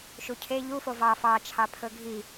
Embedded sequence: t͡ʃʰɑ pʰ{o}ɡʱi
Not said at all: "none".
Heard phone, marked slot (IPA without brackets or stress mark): ɵ